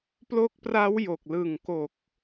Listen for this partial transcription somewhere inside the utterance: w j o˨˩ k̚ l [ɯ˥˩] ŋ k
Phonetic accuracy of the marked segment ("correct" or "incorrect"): incorrect